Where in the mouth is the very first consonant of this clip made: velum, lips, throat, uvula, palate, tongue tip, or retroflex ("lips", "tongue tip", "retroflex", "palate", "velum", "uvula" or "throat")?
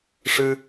retroflex